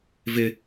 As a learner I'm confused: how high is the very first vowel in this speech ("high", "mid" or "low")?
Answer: high